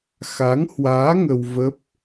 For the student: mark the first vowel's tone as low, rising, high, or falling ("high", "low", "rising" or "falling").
rising